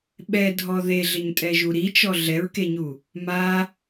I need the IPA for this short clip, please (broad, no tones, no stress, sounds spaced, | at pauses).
ɓ ɛ dʱ ɔ ð e ɮ ɪ ɲ tʼ ɛ ʒ u ɾ i t͡ʃ ɔ ɮ ɛ ɹ k e ɲ u | m a